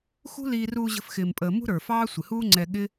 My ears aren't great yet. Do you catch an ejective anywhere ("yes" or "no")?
yes